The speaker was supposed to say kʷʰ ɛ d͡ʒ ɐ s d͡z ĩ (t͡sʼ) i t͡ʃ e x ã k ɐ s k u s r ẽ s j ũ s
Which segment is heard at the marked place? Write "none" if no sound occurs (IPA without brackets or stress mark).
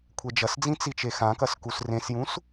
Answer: t͡s